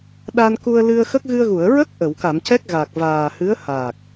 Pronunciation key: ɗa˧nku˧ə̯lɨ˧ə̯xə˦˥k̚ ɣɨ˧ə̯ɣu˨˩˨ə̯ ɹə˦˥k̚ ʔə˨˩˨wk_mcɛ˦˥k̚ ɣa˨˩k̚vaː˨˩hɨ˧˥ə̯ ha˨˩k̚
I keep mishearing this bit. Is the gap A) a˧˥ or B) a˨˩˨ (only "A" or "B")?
B